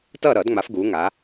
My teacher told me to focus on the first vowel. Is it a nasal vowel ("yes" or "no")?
no